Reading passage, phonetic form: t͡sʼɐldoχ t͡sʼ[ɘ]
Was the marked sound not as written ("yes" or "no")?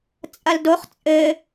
no